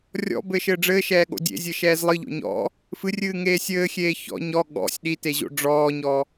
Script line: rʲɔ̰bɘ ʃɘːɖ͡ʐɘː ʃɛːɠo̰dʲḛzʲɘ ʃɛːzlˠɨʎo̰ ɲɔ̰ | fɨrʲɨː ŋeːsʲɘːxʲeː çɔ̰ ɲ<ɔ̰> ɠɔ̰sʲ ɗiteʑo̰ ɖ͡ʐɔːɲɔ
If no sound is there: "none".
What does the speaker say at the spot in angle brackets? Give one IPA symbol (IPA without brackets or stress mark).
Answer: ɔ